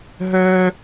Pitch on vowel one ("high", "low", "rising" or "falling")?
high